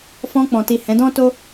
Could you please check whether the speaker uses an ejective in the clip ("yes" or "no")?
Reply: no